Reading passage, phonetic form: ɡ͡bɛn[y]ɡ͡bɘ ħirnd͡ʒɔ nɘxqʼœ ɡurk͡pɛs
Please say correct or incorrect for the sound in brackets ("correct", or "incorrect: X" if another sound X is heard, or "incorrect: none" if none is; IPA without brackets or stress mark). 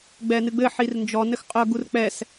incorrect: ɨ